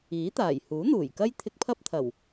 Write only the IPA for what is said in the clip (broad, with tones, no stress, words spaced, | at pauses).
iː˨˥t̪aː˨˩j huː˨˥n̪uː˨˩jkɐ˥j t̪ʰɪ˧k̚pʰɐ˥p̚t̪ʰɐ˨˩w